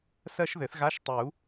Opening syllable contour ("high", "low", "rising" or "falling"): high